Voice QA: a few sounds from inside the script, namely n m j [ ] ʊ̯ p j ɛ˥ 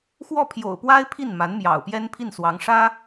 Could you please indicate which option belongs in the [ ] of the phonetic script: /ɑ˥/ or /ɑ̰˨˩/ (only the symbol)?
ɑ̰˨˩